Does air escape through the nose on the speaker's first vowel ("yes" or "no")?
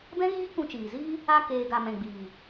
yes